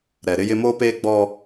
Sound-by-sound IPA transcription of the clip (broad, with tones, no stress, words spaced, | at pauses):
ɾɛ˨ɾɪ˦jɪ˦ moː˦peː˦ɡ͡bɔ˦